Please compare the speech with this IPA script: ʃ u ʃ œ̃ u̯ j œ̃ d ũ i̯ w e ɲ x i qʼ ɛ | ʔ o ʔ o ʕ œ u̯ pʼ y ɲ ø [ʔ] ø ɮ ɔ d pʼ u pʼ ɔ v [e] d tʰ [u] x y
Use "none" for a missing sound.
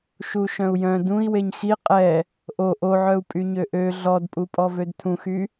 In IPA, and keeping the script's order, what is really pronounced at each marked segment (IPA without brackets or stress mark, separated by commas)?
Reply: ʔ, ø, ũ